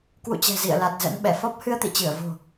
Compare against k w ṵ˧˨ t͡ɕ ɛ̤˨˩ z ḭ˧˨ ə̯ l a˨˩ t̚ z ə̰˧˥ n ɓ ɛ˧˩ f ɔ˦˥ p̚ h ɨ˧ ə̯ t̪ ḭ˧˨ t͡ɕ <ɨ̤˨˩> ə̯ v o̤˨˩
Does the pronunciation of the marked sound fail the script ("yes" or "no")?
yes